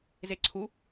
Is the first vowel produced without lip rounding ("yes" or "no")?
yes